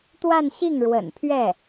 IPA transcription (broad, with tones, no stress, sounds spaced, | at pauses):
t̪ w a˥˧ n ɕ i˥˩ ŋ ɻ w ə̰˨˩ n pʰ ɥ ɛ˥˩